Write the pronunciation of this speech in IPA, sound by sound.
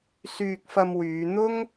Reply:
s yː˧ k̚ f ɐ˧ m w yː˨˧ n̪ ʊ˥ ŋ

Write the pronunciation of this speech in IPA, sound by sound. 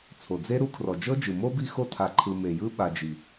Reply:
t͡sʰ o˩ d͡z e˦ ɾ u˦ kʰ r ɔ˩ d͡ʒ ɤ˦ d͡ʒ ɯ˩ m o˥ b i˦ x o˦ tʰ a˨ ǃʰ ɯ˨ m e˩ j ɯ˦ ɓ a˨ d͡ʒ i˩

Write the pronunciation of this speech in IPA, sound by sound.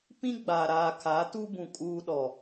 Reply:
p ĩ˦ ɡ͡b a˨ ɾ aː˨ kʰ a˨˦ t u˦ b ũ˨ kʼ uː˦ ɗ ɔ˨

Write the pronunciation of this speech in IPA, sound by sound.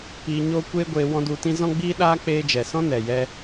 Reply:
p iː˧ ɲ oː˦ kʷ eː˦ ɡʷ eː˧ w ɔ̃˦ d u˧ t ĩ˦ z ɔ̃˦ ɡ͡b iː˦ ɗ aː˦ k͡p eː˦ d͡ʒ ɛ˨ s ɔ̃˦ n ɛ˨ j ɛ˧

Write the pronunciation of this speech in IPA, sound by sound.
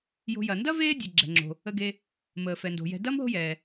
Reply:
j o̤˨ j ɐ˩ n d ɐ˥ v eː˦ dʲ ə˩ ɡ͡ǁ ɛ̤˩ ŋ͡ǁ o̤˩ | ə˨ ɡ e˨ | m əː˩ f ɛ˩ n d o̤˩ j ɛ̤˨ d ɐ˥ m ɦ o̤˦ j ɛː˩

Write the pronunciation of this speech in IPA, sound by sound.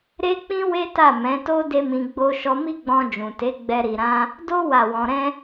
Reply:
ɾ e˦ k͡p ĩ˦ w e˦ t a˦˨ m ɛ̃˨˦ t o˦ d e˦ m ĩ˧ ɡ͡b o˦ ʃ ɔ˧ m i˦ ɡ͡b ɔ̃˧ d͡ʒ ũ˨ t e˨˦ ɡ͡b ɛ˦ ɾ i˧ ɾ ã˦ | d o˦ w a˦˨ w ɔ̃˧ ɾ ɛ̃˦

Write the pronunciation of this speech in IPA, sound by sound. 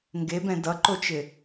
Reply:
ŋ ɡ e b ɛ̃ d ʌ ǃ o t͡ʃ ɪ

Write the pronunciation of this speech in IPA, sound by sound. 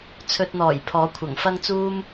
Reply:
t͡sʰ ɵ˧ t̚ n̪ ɔː˨˩ j pʰ ɔː˨˥ kʷʰ ɐ˨˩ ŋ f ɐ˥ ŋ t͡s uː˥ m

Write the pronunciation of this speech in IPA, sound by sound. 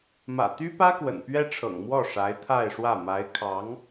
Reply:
m ä̰˨˩ t̪ y˥ p ä˥ k w ə̰˨˩ n p ɥ ɛ˥ ʈ͡ʂʰ ɤ̰˨˩ ŋ m w ɔ˥˩ ʂ a˧˥ ɪ̯ t̪ʰ a˥˧ ɪ̯ ʂ w ä˥˩ m a˧˥ ɪ̯ kʰ ɑ˧˥ ŋ

